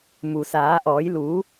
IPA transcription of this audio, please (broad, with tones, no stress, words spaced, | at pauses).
mu˩saː˩˧ʔɔː˩˧j luː˩˧